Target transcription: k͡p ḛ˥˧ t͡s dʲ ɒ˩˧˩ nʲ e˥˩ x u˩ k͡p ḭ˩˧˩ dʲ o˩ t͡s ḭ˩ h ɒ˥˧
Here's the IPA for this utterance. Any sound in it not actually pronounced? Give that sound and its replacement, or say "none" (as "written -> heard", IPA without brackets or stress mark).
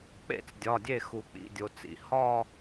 nʲ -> dʲ